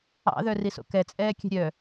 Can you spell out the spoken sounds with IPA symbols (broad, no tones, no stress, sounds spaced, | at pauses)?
ɑ̰ ð œ r i s o̰ k ɛ t͡sʼ ɛː kʲ ɛ̤ ɾʲ œ